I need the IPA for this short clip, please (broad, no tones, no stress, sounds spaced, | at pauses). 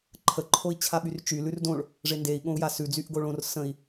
ǃʰ ə ǃʰ o i̯ t͡ɕʰ a ɓ y r t͡ʃ y l ʉ r d õ ɭ | ʐ e n d e i̯ ɠ õ u̯ j a s ʉ d͡z y ʔ ɡ o ɭ õ r s ə̃ i̯